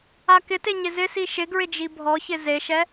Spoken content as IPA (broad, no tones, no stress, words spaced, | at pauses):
akɪte ɲɪzɪsi ʃɪɡɹɪ d͡ʒibʱɔçɪ zeʃɛ